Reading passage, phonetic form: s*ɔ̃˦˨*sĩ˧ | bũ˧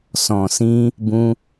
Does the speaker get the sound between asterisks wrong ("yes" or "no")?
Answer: yes